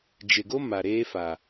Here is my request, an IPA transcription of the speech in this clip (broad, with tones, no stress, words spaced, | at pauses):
d͡ʒɪ˨ɡo˦ ma˨ɾeː˦fa˨